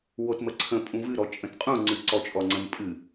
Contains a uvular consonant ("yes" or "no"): yes